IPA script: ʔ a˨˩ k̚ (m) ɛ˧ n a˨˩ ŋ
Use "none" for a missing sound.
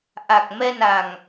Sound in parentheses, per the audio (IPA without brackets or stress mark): m